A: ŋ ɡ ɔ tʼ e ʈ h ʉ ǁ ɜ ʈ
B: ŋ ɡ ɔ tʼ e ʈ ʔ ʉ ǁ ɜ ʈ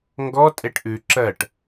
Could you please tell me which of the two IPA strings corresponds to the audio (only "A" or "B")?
B